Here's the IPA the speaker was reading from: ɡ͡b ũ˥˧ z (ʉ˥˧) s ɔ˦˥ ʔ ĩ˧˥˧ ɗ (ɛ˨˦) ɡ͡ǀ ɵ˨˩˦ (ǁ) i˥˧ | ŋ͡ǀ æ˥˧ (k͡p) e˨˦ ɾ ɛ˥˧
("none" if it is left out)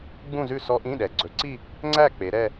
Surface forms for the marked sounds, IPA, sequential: ʉ˥˧, ɛ˨˩, ǀ, k͡p

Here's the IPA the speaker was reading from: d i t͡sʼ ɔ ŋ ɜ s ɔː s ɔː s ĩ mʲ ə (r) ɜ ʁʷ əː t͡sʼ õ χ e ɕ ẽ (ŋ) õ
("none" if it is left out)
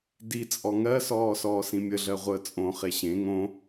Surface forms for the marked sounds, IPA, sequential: ɮ, ŋ

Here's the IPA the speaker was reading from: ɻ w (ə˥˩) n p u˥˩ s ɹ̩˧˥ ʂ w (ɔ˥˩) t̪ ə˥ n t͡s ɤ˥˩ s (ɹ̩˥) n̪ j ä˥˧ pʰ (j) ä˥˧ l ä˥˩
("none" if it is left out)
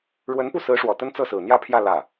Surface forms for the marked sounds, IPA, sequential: ə˧˥, ɔ˨˩, ɹ̩˨˩, j

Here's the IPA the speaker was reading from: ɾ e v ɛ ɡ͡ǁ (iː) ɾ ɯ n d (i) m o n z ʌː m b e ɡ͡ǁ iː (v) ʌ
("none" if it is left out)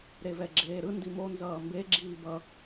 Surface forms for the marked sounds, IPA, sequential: eː, i, b

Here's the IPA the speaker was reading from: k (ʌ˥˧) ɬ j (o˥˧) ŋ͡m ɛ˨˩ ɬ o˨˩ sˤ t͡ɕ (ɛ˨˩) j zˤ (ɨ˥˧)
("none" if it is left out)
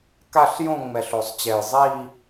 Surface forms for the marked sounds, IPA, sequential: a˥˧, õ˥˧, ɛ˨˩, i˥˧

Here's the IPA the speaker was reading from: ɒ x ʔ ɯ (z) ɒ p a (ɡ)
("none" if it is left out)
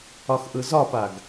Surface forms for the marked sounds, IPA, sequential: z, ɡ

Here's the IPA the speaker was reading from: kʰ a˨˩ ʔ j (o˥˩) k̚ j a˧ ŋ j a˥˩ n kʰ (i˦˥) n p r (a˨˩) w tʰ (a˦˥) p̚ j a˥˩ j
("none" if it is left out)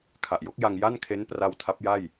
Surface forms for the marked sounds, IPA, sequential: o˦˥, e˦˥, a˧, a˦˥

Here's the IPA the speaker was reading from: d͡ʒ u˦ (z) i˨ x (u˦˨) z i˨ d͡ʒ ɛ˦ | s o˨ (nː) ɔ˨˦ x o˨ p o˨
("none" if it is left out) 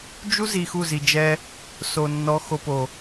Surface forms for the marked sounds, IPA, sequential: z, u˦˨, nː

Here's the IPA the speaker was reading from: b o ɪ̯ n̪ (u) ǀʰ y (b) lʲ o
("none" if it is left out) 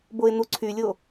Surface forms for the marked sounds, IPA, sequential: u, none

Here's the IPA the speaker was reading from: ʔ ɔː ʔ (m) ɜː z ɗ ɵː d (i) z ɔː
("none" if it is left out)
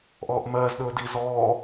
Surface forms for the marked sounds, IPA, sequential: m, i

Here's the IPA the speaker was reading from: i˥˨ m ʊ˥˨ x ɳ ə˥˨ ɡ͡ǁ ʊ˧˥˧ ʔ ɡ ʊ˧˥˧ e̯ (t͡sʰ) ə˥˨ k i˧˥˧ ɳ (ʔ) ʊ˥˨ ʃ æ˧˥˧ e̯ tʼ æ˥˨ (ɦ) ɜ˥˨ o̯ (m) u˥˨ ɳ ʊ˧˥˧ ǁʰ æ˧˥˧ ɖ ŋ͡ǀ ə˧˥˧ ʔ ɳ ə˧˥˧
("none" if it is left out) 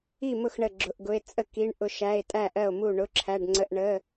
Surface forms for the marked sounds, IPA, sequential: t͡sʼ, ʔ, ʔ, m

